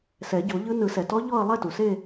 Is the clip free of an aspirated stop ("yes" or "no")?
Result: yes